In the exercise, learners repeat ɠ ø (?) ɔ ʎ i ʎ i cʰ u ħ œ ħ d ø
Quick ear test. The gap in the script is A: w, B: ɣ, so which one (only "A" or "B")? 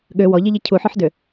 A